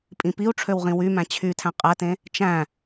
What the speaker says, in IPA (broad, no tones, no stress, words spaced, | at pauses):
pʼĩpiu̯ʈ͡ʂʰøw ʁĩwymæ̃ t͡ɕʰy tʰæ̃qʼætẽ | t͡ʃæ̃